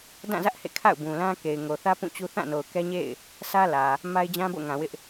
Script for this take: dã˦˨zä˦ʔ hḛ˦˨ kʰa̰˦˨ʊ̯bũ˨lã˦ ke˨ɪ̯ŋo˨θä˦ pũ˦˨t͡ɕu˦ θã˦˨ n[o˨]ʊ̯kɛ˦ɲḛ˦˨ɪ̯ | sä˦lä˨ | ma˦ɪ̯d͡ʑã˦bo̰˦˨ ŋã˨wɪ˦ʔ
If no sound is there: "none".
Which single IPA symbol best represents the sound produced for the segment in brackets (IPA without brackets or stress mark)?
o˨